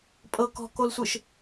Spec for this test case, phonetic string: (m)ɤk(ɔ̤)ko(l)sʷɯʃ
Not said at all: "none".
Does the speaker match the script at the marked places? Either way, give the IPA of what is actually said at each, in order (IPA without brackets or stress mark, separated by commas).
pʼ, ɔ̤, l